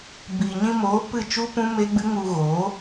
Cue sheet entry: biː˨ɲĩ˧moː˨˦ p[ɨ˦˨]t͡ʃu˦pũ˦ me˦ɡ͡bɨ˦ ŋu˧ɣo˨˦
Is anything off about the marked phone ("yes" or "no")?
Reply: no